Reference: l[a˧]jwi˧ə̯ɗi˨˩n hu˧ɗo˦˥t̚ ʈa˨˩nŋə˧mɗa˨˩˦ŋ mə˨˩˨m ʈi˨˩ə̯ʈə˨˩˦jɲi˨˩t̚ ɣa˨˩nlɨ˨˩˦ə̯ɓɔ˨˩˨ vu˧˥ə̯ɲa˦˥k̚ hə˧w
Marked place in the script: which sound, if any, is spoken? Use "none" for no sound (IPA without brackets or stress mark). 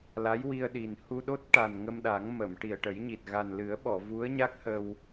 a˧˥